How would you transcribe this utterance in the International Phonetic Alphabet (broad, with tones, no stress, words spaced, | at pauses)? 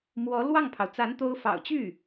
mwɔ˧˥lwɑ˥˩ŋpʰɑ˩ʊ̯t͡sa˧˥n t̪o˥ʊ̯fɑ̰˨˩ʊ̯ t͡ɕy˥˩